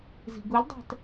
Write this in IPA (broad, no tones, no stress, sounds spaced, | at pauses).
z i̤ ɡ u lʲ dˤ æ̤ t